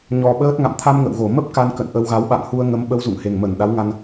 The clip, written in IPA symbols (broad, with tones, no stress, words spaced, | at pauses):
ɲɔ˨˩ɓəː˦˥t̚ ŋa̰˧˨m t̪ʰa˧m ŋə̰˧˨wɣo˧˩ mə˦˥p̚ ka˧n kə̰˧˨nʔə˧wɣa˨˦w ɓa̰˧˨ŋhu˧ə̯ ŋə˨˦mɓə˧w zṵ˧˨ŋhe˨˩ŋmə˧˩n ɗa˨˦wŋa˧n